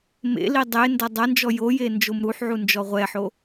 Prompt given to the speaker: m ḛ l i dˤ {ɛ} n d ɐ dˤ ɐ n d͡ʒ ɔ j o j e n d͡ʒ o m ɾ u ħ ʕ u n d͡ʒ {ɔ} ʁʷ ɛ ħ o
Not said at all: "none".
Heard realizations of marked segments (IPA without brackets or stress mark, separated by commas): e, ɔ